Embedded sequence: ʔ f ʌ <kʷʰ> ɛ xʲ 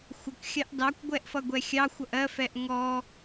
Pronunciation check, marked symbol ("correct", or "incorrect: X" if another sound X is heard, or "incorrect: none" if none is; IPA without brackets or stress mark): incorrect: ɡʷ